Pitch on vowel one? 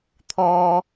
high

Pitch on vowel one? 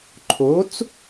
rising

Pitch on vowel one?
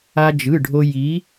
high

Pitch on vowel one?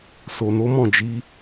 low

